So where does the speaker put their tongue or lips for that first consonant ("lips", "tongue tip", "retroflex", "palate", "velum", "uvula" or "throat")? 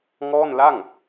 velum